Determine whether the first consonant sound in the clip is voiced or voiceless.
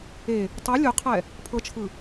voiceless